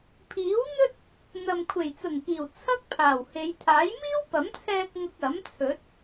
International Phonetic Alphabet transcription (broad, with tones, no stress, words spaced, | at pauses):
pʰiː˨˥wn̪ɵ˥t̚ | n̪ɐ˨mkʷʰe˨˩jt͡sʊ˨˩ŋkiː˨˩w t͡sʰɐ˥k̚pʰaː˨˩whe˨˧j t̪ʰaː˨˥j miː˥wpɐ˨˥mt͡sʰɛː˧k̚ ŋʊ˧k̚ɐ˨˥m t͡sʰɵ˨˥t̚